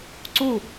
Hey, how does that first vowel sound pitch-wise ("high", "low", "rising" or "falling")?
falling